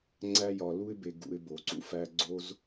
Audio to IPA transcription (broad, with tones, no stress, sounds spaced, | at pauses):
ŋ͡ǀ æ˦ j ɒ˧ l u˦ ɪ̯ b e˧ ɡ ṵ˧ ɪ̯ b o˧ ǀ ṵ˦ f æ˦ ɡ͡ǀ o˦ z